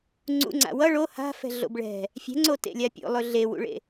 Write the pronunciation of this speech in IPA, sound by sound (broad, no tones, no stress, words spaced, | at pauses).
ŋ͡ǀṵŋ͡ǀa̰ wʌ ɭo ha̤fɛ̤ɮo̰b ɭɛ̤ | fʲɛ̤ŋ͡ǀotḛlʲa pʲo̰lˠɵ ɮewṵɭḛ